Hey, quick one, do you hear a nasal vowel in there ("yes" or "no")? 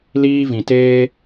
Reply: yes